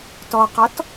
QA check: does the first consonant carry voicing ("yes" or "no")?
no